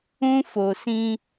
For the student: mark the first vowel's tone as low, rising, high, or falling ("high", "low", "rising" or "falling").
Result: high